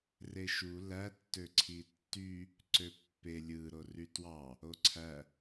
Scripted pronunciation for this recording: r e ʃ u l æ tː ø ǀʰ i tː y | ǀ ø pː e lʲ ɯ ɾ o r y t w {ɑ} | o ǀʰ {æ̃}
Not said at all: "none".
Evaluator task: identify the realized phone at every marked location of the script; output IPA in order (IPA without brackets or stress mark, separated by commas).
ɑ, æ